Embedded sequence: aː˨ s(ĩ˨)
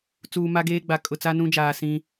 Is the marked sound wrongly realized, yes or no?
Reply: yes